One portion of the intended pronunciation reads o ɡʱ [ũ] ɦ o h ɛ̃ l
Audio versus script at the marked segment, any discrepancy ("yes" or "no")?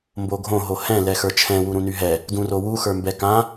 yes